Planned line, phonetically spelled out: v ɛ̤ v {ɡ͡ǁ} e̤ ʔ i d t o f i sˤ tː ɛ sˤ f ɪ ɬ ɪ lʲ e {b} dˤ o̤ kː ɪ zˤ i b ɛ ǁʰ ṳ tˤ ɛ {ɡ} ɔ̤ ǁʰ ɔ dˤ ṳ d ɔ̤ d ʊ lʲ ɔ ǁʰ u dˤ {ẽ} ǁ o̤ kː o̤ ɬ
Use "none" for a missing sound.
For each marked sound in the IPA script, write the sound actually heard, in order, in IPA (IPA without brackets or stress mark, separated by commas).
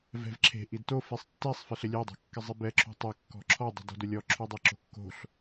ǁʰ, none, kː, e